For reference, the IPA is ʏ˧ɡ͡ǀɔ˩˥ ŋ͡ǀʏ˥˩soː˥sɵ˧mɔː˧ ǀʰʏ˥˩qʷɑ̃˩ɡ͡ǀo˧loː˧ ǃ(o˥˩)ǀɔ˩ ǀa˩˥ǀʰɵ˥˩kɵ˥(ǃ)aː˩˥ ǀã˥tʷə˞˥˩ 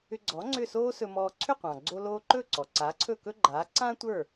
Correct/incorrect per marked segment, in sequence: incorrect: ɵ˥˩, incorrect: ɡ͡ǃ

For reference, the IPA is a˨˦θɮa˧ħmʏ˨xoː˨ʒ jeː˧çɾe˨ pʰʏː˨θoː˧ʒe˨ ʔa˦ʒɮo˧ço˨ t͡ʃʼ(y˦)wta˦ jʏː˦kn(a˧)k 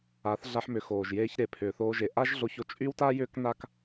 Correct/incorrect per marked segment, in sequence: correct, incorrect: a˦

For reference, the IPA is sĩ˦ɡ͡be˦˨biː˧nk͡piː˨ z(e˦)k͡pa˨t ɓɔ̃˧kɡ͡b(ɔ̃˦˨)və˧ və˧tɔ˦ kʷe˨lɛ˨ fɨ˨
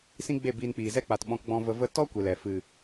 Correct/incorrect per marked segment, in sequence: incorrect: ɛ˦, incorrect: ɔ̃˧

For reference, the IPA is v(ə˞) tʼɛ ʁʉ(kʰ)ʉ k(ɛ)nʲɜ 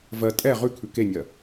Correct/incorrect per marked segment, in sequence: incorrect: ɜ, correct, incorrect: e

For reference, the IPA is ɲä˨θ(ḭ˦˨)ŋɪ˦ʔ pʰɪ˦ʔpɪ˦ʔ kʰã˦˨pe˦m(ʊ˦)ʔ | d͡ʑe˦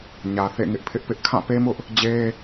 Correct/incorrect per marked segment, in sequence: incorrect: ḛ˦˨, correct

